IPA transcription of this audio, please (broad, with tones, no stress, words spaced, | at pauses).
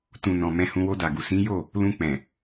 tũ˨nɔ̃˨ mɛ̃˧hũ˧ wo˧da˨ɡu˨ sĩ˨˦jo˦˨ | lũ˧k͡pɛ̃˨